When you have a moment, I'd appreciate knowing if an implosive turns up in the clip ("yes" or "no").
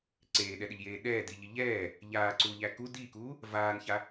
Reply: yes